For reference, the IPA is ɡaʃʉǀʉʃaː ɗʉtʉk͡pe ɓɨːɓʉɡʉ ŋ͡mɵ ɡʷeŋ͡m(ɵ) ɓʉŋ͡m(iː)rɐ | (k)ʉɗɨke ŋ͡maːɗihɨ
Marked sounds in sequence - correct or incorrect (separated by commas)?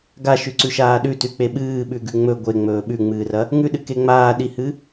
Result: incorrect, incorrect, incorrect